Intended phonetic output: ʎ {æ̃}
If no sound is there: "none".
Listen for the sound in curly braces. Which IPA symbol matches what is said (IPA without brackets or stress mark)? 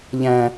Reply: æ̃